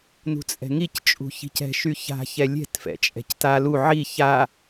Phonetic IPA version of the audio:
n ṳ t͡sʼ ɛ̤ ŋ i c t͡ʃʼ ṳ ç i̤ c ɛ̤ ʃ y ç a̤ ç ɛ lʲ ɛ̤ t f ɛ̰ t͡ʃʼ ɛ̤ c t a l u ʕ i ç a

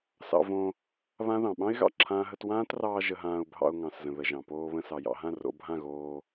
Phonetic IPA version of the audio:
s ɑ̰˧ v õ˧ | β ã˦ ð ɑ̃˨ ɓ ɑ̃˦ ɪ̯ ɣ ɑ̰˨ ǁʰ ãː˦ ɦ ə˦ t w ãː˦ t r ɑː˧ ʒ ə˧ ɦ ãː˧ ʊ̯ bʱ ɑ̰˧ ʊ̯ ŋ ɑ̃˨ s z ə̃˨ ð ə˨ ʒ ɑ̃˨ p oː˧ β ə̃˧ s ɑ˨ j ɑ̰˧ ɦ ã˦˨ r o̰˧ bʱ ã˦˨ ɣ oː˧

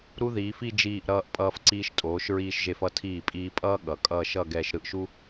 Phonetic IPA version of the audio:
ɾ u˥ ð iː˩˧ f i˥˧ d͡ʒ iː˧˩ ʔ ɾ ʌː˧ ʔ pʼ ʌː˧ f ǀ iː˧ ʃ tʼ oː˩˧ ʃ ɹ iː˧ ʃ ʒ e˧ f ʌ˧ tʰ iː˧˩ pʼ iː˧ pʼ ʌː˥ ɠ ʌ˩˧ kʼ ʌː˥˧ ʃ ʌ˥˧ ɡ ɛː˧ ʃ ɾ ɯ˧ ʔ ʃ u˥

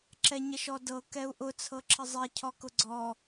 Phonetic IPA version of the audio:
ǁ ɛ ɲ ə ʃ ɔ d ɤ k ɛ u̯ ʔ ʊ t͡sʰ ɤ ǁʰ ə zˤ ɛ cʰ ɔ k ʊ ɡ͡ǀ ɔ

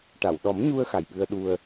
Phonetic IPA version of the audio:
ʈ a˨˩˨ w ɗ ɔ˨˩˦ m ɲ u˧ ə̯ x a˨˩ j ɓ ɨ˧ ə̯ ɗ u˧ ə̯

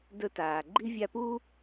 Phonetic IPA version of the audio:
d ɵ˦ t aː˨ ɡ͡ǃ i˥ vʲ a˦ p u˥

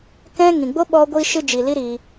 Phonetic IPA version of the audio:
k ɛ̃˦ ŋ ĩ˨ ɡ͡b o˦ ɓ ɔ˧ ɡʷ i˧ ʃ ɨ˧ d͡ʒ i˨ l i˦ ɾ i˧

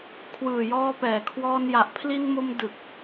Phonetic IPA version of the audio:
kʰ w ɯː˨˩ j ɔː˧ p ɛː˨˩ kʰ w ɔː˧ n j a˨˩ ʔ pʰ l i˧ n m o˧ m d ɯ˨˩ k̚

